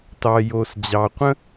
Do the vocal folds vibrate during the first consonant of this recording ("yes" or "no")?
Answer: no